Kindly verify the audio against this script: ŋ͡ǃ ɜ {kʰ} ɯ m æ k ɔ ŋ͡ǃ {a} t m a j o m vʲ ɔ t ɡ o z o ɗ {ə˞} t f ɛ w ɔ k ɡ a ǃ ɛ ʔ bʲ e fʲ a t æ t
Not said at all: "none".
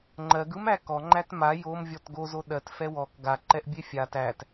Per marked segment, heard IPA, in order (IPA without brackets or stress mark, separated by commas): ɡ, æ, ɜ